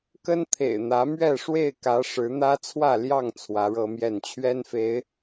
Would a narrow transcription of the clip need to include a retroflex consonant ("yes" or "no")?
yes